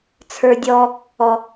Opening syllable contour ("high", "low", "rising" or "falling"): high